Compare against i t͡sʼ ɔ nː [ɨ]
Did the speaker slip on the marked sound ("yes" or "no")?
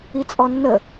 yes